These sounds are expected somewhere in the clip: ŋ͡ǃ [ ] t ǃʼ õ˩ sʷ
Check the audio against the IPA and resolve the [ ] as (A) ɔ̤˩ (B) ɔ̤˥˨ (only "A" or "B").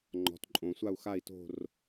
A